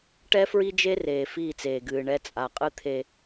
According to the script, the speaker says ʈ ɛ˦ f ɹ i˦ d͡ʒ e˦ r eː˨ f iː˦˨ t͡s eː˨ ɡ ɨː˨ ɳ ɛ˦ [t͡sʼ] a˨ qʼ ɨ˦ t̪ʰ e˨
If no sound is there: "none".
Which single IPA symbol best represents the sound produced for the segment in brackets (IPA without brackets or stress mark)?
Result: t͡sʼ